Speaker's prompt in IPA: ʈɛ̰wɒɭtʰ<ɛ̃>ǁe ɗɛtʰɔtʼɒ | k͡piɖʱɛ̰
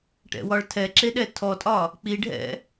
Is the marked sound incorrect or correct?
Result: incorrect